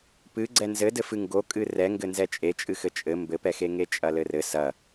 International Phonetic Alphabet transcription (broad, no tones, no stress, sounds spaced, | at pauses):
p ɨ ɡ͡ǀ ɛ n z ɘ d ɘ f ɨ ŋ ɡ o kʼ ɨ r ɛ ŋ ɡ ɘ n z ɛ t͡ʃʼ e t͡ʃʼ ɨ x ɘ t͡ʃʼ ɘ m b ɘ p ɛ x e ŋ e t͡ʃʼ ɐ l ɘ r ɘ s ɐ